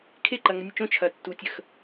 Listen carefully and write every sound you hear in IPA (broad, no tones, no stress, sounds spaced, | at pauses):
kʰ e ǃ ɐ ŋ ə nʲ ə t͡ʃ õ t͡ʃʰ ɐ tː u tʲ ə x